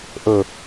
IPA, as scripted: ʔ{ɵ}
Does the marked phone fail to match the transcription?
no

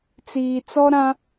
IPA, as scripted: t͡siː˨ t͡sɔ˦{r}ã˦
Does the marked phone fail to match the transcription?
yes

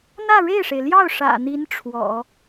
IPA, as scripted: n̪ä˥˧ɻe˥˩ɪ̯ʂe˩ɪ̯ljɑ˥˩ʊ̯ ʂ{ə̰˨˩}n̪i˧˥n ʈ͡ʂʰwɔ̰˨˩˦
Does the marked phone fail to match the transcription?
yes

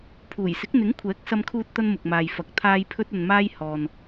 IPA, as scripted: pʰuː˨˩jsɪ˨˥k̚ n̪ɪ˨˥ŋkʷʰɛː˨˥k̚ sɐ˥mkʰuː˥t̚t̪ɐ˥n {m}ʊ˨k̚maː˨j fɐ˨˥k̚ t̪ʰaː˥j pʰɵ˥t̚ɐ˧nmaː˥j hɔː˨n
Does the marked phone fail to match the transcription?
no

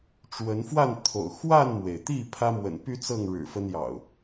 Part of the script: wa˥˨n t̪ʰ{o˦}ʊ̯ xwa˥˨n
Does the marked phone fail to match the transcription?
yes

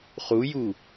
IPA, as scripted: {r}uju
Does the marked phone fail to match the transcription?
yes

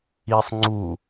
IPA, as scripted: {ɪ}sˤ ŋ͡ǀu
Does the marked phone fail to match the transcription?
yes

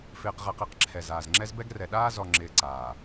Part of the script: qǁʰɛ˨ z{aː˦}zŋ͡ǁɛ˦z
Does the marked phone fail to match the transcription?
yes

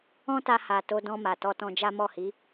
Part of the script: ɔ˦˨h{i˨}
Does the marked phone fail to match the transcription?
yes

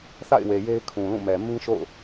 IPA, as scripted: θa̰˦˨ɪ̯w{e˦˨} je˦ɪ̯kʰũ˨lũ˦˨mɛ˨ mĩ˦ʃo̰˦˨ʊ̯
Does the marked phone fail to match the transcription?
yes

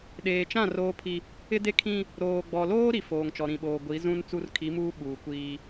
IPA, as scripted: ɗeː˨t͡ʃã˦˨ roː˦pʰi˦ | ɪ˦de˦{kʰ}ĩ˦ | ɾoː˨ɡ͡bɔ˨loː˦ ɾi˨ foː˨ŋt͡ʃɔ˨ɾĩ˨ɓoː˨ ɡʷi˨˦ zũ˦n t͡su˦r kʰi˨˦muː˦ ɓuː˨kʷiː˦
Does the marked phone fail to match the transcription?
no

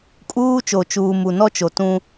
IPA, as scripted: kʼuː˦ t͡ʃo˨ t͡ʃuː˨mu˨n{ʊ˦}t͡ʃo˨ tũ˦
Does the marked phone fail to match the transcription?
yes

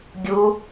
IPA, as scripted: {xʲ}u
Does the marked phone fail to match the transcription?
yes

